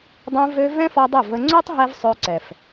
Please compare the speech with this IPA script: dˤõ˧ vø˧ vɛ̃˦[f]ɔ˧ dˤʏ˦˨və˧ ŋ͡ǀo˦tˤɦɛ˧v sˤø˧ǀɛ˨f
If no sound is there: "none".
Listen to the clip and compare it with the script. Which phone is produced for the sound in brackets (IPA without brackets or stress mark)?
f